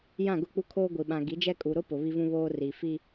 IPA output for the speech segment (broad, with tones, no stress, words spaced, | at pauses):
jã˦˨ɡʊ˦˨ k͡pu˦kʰoː˦ɡʷi˨ ɓã˨ɡi˨˦d͡ʒɛ˦ kʼu˨ɾʊ˦ pʊ˨ βi˦vũ˦βoː˦ ri˨fi˦